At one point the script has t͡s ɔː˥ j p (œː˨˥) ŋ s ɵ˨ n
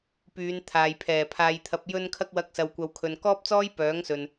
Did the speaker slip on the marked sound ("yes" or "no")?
no